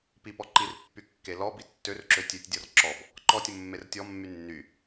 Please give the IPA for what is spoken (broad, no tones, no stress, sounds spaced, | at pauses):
p i p ɔ ǃ i r pː y kː e l ɔ b i tː ø r ǁ ø tʲ ø tʲ dʲ ɔ r ǁ ɔ b | ǃ ɔ tʲ ʊ mː e r tʲ ɔ mː y nː y